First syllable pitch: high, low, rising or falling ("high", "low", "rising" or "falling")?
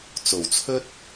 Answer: low